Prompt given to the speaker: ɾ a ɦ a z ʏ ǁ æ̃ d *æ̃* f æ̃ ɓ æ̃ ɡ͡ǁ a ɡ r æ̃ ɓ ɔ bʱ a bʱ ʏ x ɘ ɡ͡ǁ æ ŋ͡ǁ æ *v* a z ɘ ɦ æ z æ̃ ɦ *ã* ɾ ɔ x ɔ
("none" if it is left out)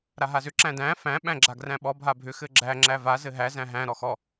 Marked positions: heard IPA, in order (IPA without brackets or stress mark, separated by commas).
æ̃, v, æ̃